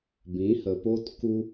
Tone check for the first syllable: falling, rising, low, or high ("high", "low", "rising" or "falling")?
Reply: rising